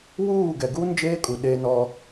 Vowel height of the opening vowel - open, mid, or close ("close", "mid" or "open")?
close